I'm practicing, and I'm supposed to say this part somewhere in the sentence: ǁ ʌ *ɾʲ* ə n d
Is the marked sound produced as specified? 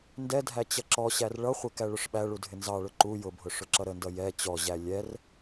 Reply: no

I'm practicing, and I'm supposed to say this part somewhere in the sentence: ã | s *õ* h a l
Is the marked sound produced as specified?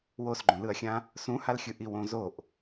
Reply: no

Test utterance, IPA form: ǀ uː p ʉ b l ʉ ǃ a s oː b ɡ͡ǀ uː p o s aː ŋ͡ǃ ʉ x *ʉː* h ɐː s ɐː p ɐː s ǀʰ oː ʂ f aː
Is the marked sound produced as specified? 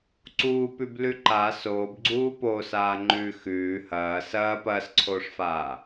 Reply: yes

